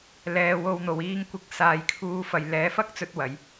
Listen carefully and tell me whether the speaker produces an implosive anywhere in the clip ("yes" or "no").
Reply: no